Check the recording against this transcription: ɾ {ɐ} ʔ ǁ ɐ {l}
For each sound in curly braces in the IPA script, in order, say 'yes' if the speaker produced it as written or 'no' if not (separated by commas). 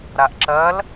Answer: no, yes